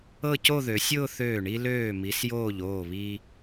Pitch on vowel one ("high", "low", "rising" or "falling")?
falling